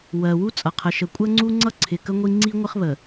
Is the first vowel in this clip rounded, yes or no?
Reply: no